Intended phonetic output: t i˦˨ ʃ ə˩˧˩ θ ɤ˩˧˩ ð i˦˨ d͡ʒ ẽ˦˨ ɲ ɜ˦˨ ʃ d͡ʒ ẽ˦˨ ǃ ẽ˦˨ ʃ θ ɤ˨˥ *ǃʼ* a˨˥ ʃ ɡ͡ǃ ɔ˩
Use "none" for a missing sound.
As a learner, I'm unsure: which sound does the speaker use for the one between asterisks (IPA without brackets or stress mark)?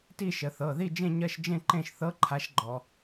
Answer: ǃʰ